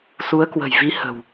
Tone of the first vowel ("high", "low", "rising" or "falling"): rising